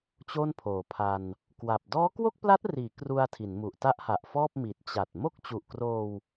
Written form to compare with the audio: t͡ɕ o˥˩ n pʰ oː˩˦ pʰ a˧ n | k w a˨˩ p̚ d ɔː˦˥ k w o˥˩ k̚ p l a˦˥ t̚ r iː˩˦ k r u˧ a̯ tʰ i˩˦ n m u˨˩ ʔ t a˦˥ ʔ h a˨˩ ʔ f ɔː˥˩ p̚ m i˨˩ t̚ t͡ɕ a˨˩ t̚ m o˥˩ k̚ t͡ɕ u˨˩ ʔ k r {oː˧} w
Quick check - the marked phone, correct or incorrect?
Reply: correct